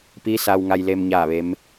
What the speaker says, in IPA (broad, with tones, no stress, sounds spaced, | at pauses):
p iː˧˥ s a˧ w ŋ a˧ j l e˧ m ɲ aː˥˨ ʋ e˧˥ m